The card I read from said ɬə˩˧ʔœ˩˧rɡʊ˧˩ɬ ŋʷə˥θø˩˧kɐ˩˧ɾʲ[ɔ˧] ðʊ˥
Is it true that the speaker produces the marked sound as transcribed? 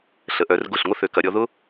no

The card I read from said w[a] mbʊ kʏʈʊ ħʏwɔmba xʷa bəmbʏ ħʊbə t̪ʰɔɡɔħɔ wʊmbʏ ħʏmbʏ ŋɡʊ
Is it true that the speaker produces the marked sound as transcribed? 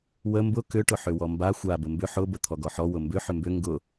no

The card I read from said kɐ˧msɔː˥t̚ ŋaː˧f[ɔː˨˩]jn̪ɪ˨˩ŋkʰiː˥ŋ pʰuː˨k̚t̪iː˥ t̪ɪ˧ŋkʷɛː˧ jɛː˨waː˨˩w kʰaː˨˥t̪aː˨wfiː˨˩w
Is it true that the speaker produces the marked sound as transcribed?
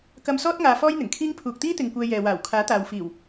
no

